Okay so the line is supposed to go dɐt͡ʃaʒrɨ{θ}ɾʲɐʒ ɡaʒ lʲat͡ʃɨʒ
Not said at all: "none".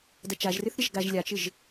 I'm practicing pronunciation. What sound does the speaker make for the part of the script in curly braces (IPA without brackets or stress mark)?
θ